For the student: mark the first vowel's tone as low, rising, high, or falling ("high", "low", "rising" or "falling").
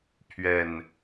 low